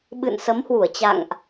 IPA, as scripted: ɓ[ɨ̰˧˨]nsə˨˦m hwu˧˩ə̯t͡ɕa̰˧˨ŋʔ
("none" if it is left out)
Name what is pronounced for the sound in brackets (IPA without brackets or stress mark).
ɨ̰˧˨